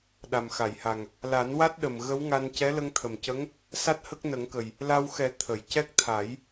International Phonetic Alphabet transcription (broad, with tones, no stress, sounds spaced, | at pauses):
ɗ a˨˩ m x a˨˩˨ j h a˨˩ ŋ | l a˨˩˦ n w a˦˥ t̚ ɗ ə˨˩ m ɣ ə˧˥ w ŋ a˧ n c ɛ˧˥ l ə˧ ŋ t̪ʰ ə˨˩ m c ə˧˥ ŋ | s a˦˥ t̚ h ə˦˥ k̚ n ə˨˩˦ ŋ k ə˨˩ j | l a˧ w x ɛ˨˩˦ t̪ʰ ə˨˩˨ j c ɛ˦˥ k̚ t̪ʰ a˨˩˦ j